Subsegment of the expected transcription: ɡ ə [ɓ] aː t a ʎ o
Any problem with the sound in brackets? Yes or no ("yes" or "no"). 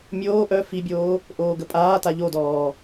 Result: yes